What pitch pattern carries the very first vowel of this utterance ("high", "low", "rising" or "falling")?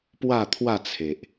falling